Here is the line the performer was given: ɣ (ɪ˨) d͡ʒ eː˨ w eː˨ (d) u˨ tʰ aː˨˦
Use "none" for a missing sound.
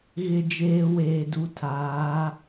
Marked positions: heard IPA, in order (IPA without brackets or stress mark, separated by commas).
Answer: ɪ˨, d